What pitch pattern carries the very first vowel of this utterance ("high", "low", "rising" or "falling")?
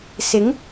rising